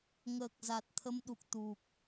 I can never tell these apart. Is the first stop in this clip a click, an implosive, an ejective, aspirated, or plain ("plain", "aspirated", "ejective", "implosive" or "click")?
plain